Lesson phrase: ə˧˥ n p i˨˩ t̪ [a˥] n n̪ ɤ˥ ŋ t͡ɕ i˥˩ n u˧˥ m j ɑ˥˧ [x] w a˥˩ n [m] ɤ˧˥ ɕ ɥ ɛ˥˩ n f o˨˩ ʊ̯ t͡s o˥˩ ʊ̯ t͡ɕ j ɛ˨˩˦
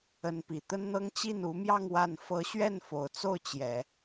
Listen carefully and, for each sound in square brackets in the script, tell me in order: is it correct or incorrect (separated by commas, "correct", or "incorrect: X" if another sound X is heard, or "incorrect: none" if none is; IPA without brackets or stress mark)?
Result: incorrect: ə˥, incorrect: ŋ, incorrect: f